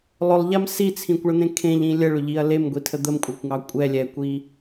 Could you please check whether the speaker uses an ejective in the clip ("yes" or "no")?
yes